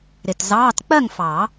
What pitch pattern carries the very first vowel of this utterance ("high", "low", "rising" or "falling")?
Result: low